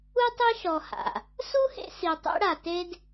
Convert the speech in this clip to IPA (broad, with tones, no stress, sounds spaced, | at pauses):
u˦ tˤ e˦ ʃ ɔ˨ h a̰˩ | s u˥ h ḛ˦ s i˨ tˤ ḛ˦ ɽ a˨ t e˥ d